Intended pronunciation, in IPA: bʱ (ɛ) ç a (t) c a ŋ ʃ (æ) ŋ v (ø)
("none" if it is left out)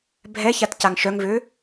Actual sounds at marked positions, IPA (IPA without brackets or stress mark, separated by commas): ɛ, t, œ, ø